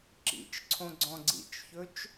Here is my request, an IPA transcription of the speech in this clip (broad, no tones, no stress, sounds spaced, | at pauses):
ǁ ḭ t͡ʃ ǀʰ õ ɡ͡ǀ ɔ̃ ɡ͡ǀ ḭ t͡ʃ ç ɵ t͡ʃ